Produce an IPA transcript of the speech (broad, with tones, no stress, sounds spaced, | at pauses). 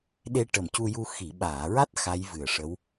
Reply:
ɗ e˧ ʈ ə˨˩ m c u˧ j u˧ x i˨˩˨ ɓ aː˨˩˨ ɹ a˦˥ t̚ x a˧˥ j v ɨ˨˩ ə̯ ʂ ə˧˥ w